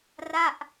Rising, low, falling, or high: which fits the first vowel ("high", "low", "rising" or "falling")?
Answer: falling